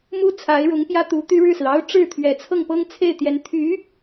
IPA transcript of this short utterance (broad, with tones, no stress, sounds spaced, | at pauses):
m u˥ t͡sʰ a˧˥ ɪ̯ ɻ ʊ˧˥ ŋ p j ä˥ t̪ u˧˥ t̪ y˥ ɻ ɻ̩˥˩ s ɹ̩˩ ɑ˥ ʊ̯ ʈ͡ʂ ɻ̩˥˩ t̪ʰ ɥ ɛ˨˩ t͡sʰ ɤ˥˩ ŋ p ɤ˥ ŋ t͡sʰ e˥˩ ɪ̯ t̪ j ɛ˧˥ n t̪ʰ y˧˥